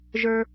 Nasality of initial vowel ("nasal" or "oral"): oral